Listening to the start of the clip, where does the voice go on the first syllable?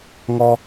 low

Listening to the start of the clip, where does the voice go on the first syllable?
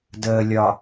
low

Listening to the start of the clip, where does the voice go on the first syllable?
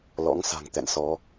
rising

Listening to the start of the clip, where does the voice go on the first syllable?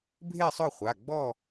falling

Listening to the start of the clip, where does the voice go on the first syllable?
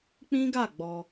high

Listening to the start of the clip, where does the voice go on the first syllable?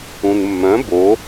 low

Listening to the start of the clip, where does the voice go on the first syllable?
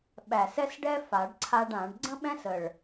low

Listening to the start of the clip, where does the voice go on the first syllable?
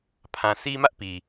low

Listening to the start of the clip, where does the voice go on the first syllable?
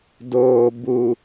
low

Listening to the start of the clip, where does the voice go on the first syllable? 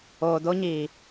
low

